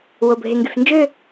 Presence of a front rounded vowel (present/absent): present